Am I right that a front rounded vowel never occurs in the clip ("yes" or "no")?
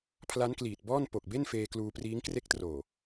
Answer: yes